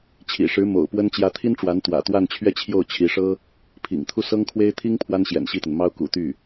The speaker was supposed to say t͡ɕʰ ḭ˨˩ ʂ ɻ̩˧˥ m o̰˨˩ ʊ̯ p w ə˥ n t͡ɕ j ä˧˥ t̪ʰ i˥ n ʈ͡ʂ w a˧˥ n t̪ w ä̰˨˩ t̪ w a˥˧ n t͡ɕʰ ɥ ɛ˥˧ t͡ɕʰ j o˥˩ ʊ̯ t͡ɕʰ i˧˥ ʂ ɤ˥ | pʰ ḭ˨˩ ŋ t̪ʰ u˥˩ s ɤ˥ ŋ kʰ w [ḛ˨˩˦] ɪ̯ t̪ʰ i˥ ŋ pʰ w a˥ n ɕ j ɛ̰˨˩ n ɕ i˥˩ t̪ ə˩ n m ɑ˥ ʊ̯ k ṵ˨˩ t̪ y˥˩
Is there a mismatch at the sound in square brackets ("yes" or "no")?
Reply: yes